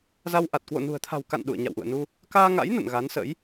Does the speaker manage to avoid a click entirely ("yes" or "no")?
yes